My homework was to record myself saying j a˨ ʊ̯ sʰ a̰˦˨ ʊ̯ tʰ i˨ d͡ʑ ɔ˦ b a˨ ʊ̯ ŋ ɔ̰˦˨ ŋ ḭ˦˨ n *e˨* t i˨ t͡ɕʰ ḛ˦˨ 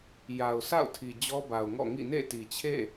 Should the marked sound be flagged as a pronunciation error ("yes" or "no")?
yes